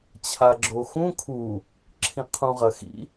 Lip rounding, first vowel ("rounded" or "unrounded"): unrounded